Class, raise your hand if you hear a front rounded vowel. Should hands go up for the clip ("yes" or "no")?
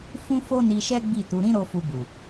no